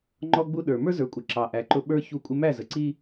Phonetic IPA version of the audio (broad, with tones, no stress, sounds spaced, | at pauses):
ŋ͡ǃ ɔ˦ ɡ͡b u˦ ɗ ə˞˨ m ə˞˦ z ə˞˨ kʷʼ ə˨ ǁ ɑ˨ ʔ æ˨ ǃ ʊ˦ ɓ ə˞˦ ç u˦˨ kʷʼ ɪ˦ m æ˦˨ z ə˨ ǀ i˦